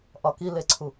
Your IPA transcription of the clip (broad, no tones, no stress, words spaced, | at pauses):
ʔɒkileǀʰu